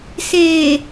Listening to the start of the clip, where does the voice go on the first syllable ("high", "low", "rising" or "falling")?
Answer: low